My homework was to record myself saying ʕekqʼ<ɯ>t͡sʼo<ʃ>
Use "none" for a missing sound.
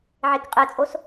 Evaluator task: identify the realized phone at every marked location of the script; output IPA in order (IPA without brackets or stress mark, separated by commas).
ɯ, s